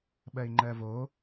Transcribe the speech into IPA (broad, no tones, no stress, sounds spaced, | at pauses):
ɓ ɜ ɪ̯ ŋ͡ǃ ɜ v o